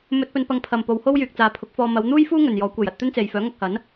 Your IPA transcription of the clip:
m ɵ˧ t̚ p ɵ˧ n p ɐ˧ ŋ pʰ ɐ˨ m p o˨˧ w h o˥ w j yː˨ k̚ t͡s aː˨ pʰ ʊ˨˥ k̚ f ɔː˧ m ɐ˨˧ w n̪ uː˥ j f uː˥ ŋ ɵ˨ n j ɔː˨˥ kʷ e˨ j ɐ˧ t̚ t̪ ɵ˥ n t͡s e˨ j f œː˨˥ ŋ ɐ˧ k̚ h ɐ˨˥ n

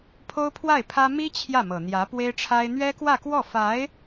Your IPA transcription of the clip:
pʰ o˥ ʊ̯ pʰ w a˥˩ ɪ̯ pʰ ä˥ m i˥ t͡ɕʰ j ä˥˩ m ɤ˨˩ n̪ j ä˧˥ p w e˥ ɪ̯ ʈ͡ʂʰ a˥ ɪ̯ n̪ ɥ ɛ˥ k w ä˥˧ k w ɔ˥˩ f a˧˥ ɪ̯

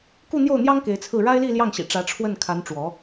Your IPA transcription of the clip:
k u˥˧ n̪ j o˥˩ ʊ̯ n̪ j ɑ˥ ŋ k e˧˥ ɪ̯ t͡sʰ ɹ̩˥˩ ɻ a˥ ɪ̯ l i˥˧ l j ɑ˥˩ ŋ ɕ ḭ˨˩ ʈ͡ʂ ä˧˥ ʈ͡ʂʰ w ə˥˩ n kʰ a˧˥ n ʈ͡ʂ w ɔ˧˥

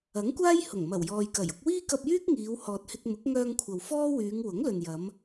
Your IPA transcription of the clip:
ɐ˨˥ ŋ kʷ aː˥ j h ʊ˨˩ ŋ m ɐ˨˩ w j ɔː˨ j k ɐ˨˩ j ʊ˧ k̚ w iː˥ k ɐ˧ p̚ j yː˥ k̚ ŋ iː˨˧ w h ɔː˨ t̚ h ɪ˧ k̚ m ʊ˨˥ k̚ ŋ œː˧ ŋ kʷʰ ɐ˨ w f ɔː˥ w yː˨˧ ŋ w ʊ˨˥ ŋ l ɵ˨ n j ɐ˨˧ m

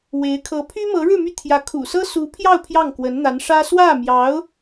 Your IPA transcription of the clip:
w e˧˥ ɪ̯ kʰ ɤ˧˥ pʰ y˥ m ɤ˧˥ ɻ ɻ̩˥˧ m y˥˩ t̪ʰ j ä˧˥ kʰ ṵ˨˩ s ɤ˥ s u˧˥ pʰ j ɑ˥˧ ʊ̯ pʰ j ɑ˥˩ ŋ k w ə˧˥ n n̪ a˧˥ n ʂ ä˥ s w ä˥˩ m j ɑ˧˥ ʊ̯

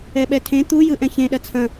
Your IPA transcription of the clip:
ɛ ɓ ɛ tʰ ẽ t̪ u j ɯ ʔ ɛ̃ ç ẽ ɗ ɐ t͡sʰ ɐ̃

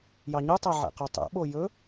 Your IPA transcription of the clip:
j ɑ ɲ u tˤ æ ʕ ɛ̰ q ø tˤ ɛ̰ ɓ o j ɵ

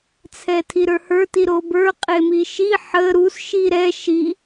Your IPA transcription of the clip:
t͡sʰ ɛ tʰ i ɾ ə˞ h ə˞ t i ɾ o b ə˞ qʼ e m i ʃ i ħ ə ɾ u s ʃ i ɾ ɛ ʃ i

